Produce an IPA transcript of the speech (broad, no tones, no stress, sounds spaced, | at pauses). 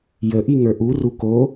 j ə ʔ i ŋ ə˞ ʔ u r u k o